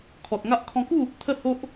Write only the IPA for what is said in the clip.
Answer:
kʰ ɔ˨ t̚ ŋ a˦ ʔ kʰ ɔ̃˧ k u˥˧ | t̪ʰ ə˥˧ h o˦ ʔ

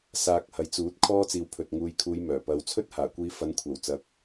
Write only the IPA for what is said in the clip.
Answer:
s aː˧ k̚ h ɐ˨˧ j t͡s uː˨˥ t̚ kʰ ɔː˥ t͡s iː˨˧ w pʰ ɵ˨ t̚ ŋ uː˨ j kʰ uː˨˧ j m œː˨˩ p ɐ˨˧ w t͡sʰ ɵ˥ t̚ h aː˨˩ kʷ iː˧ f ɐ˨˧ n kʷʰ ɐ˨˩ w t͡s ɐ˨˥ k̚

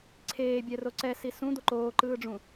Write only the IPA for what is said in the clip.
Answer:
ǀʰ eː bʲ ɛ r o ǀ ɛ s i s ũ d̪ o ǃ oː ǃ ɯː ɖ͡ʐ ũ

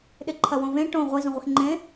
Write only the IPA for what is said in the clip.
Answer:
ɗ ɪ ǃʰ ɐ w õ v ẽ ʈ õ ʁʷ i z ũ ʁʷ e x ŋ͡ǃ ẽ

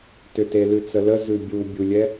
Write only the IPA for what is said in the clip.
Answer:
t ʏ t e l ʉ t͡s ə l ə z ʉ bʲ u bʲ u lʲ ɛ

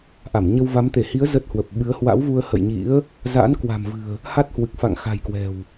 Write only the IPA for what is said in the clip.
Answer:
ʔ a˧˩ m ɲ ə˧ w v a˨˦ m t̪ e˧˩ h i˨˦ ə̯ z ə˦˥ t̚ h w ə˨˩ p̚ ɓ ɨ˨˦ ə̯ h w a̰˧˥ w v u˧ ə̯ h ə̰˧˨ j ɲ ḭ˧˥ ə̯ | z a̰˧˥ n k w a̤˨˩ m v ɨ̤˨˩ ə̯ | h a˦˥ t̚ h w ɨ˨˩ k̚ f a̰˧˨ ŋ x a̤˨˩ j k w ɛ̤˨˩ w

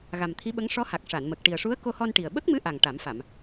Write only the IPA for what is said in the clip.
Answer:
ɣ a˨˩ m t̪ʰ i˧˥ ɓ ə˧˥ ŋ ʂ ɔ˧˥ h a˨˩ k̚ ʂ a˨˩˨ n m ə˨˩ k̚ ʈ i˨˩ ə̯ ʂ u˧˥ ə̯ k o˧ h ɔ˧ n ʈ i˨˩ ə̯ ɓ ə˦˥ k̚ m ɨ˧˥ ʔ a˨˩ ŋ ʈ a˨˩˦ m f a˨˩˨ m

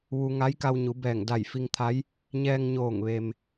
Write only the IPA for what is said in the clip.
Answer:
ʋ u˧ ŋ a˧˥ j k a˧ w ɲ u˩˧ b ɛː˧˩ ŋ d a˧˩ j f i˧ ŋ t̪ʰ a˧˥ j | ɲ ɛː˧ ŋ ɲ oː˧˩ ŋ ʋ e˩ m

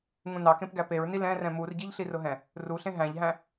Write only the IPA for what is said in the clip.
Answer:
ŋ ũ n ɑ k ẽ p ɡ æ p e ɹ n i l ɛ̃ r ɛ̃ m u r ɟ i ʎ ɬ i r ʊ ɦ ɛ̃ | r u ɬ ẽ ɦ æ̃ ʎ ɦ æ̃

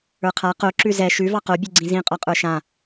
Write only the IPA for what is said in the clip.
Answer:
ə˞ qʰ a q o ǁ ʉ z ɛ ʃ ʉ v ɑ q o bʲ ʉ ɡ͡ǀ ĩ z ĩ qʼ ɒ qʼ ə˞ ʃ ã

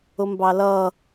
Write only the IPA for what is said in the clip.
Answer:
ʊ m b ɑ l ʌ

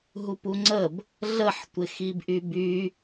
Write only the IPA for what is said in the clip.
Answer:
ɦ u p u ŋ͡ǀ ə b | ɮ ə ħ tʷ ɪ x i b ʔ y b y

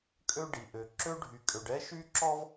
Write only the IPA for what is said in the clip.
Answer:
kʼ ø˥ ɖ i˩ ʔ ø˩ ǁ ø˥ ɖʱ y˩ kʼ ø˩ ɖ ɛ˥ ʃ y˥ ǁ ɔ˥ v

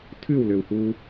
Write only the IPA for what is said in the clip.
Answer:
tʰ ʉ w l ø w h uː

